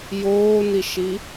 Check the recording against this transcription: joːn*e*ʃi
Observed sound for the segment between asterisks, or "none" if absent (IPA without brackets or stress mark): i